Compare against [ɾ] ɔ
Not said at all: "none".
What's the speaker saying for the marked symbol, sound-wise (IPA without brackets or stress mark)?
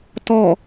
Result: t